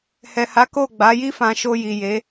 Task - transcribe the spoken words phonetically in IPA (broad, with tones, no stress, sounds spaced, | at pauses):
h ɛ˨ h a˨˦ k o˦˨ ɡ͡b a˨˦ j i˦ f ã˧ ʃ o˧ j i˨ j e˨˦